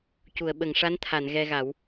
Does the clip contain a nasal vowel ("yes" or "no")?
no